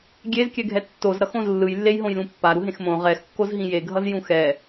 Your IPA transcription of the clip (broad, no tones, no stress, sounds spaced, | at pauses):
ɡʲ e z kʲ ɛ ɡʱ ɛ tː o z ɾ ʌ x õ z lː ɯ j lː e j ɦ õ j l ũ pː a ɾ u ɦ ẽ x m õ ʁ ɛ x kː o z ɦ ĩ j e ɡʱ ʌ z j ũ x ɛ